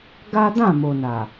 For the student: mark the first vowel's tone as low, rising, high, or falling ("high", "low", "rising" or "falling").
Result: high